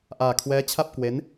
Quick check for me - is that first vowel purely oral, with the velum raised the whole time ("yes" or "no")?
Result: yes